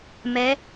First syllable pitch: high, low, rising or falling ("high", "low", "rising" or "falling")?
rising